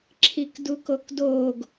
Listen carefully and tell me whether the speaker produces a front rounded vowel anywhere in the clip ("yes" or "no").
no